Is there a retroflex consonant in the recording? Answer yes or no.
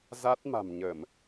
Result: no